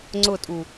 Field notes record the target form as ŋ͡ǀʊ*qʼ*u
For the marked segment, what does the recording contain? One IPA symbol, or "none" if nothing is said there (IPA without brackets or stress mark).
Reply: tʼ